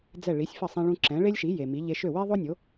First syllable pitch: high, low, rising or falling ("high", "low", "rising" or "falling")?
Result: falling